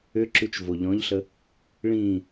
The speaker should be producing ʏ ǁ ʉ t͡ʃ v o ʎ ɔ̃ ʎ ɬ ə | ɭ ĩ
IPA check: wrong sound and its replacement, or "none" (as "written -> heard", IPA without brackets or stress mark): none